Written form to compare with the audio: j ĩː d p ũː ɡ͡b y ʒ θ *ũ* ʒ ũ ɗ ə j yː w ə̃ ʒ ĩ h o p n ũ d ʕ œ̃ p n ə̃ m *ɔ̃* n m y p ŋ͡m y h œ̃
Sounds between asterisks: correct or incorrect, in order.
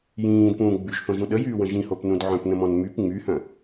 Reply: incorrect: õ, correct

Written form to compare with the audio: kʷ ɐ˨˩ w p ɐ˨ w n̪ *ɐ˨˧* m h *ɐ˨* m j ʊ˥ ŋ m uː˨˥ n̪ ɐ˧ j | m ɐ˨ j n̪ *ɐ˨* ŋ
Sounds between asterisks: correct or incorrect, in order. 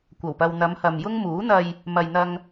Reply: correct, correct, incorrect: ɐ˧

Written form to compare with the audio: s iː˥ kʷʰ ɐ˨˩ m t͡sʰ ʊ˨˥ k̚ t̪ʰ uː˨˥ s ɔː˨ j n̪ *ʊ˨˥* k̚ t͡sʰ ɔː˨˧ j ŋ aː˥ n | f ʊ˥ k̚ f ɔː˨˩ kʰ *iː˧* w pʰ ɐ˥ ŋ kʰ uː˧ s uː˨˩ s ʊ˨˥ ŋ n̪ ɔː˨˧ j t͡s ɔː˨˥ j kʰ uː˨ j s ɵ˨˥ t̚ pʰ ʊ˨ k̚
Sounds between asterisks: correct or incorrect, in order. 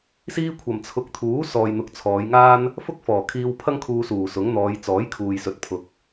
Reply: incorrect: ʊ˨, correct

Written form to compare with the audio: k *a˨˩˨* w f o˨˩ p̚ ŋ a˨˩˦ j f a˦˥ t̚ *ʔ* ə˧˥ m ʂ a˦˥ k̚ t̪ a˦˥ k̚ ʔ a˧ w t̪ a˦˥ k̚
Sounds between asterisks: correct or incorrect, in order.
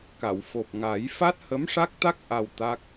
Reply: correct, incorrect: h

